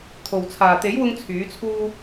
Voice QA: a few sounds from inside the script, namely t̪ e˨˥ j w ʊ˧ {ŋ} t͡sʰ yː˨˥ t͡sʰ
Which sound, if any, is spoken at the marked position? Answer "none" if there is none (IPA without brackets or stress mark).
ŋ